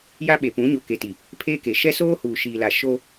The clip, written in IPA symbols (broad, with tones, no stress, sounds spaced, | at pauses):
j a˦ ɓ e˨ p ũ˨˦ ɲ o˨ k e˨ t i˨ | pʰ eː˦ k e˨ ʃ ɛ˦ s oː˦ h uː˨ ʃ iː˨ l a˨ ʃ o˦